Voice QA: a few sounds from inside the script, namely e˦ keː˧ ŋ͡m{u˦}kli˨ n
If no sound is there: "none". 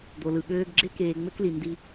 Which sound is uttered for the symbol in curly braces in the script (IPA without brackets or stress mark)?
ø˦